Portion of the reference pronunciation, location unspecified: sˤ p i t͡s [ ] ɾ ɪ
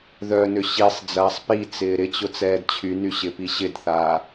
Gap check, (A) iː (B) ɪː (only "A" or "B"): B